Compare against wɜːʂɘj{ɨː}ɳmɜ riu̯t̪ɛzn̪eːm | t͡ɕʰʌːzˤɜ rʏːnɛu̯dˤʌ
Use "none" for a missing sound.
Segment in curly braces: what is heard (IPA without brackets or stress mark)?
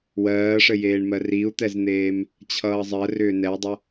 eː